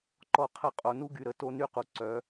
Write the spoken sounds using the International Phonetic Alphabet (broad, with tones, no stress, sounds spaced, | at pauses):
ǃ ɔ˧ qʰ ə˧ qʼ o˨ n u˦ ɡ y˨ ɾ ə˨ t o˦ n y˦ q u˨ ǀ œ˨˦